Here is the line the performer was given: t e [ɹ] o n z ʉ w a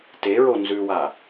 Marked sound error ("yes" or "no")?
no